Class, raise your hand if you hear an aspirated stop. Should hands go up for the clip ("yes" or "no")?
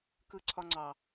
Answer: yes